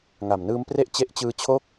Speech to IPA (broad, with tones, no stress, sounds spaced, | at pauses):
ŋ a˨˩ m n ɯː˦˥ m p r e˥˩ ʔ t͡ɕ e˦˥ ʔ t͡ɕ ɯː˧ t͡ɕʰ o˥˩ k̚